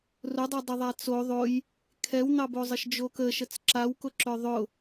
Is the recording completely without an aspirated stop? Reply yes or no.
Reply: no